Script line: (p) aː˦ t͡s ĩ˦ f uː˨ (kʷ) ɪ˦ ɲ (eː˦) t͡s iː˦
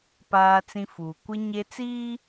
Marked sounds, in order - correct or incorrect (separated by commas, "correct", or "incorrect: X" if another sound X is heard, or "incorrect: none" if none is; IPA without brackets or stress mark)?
correct, correct, incorrect: e˦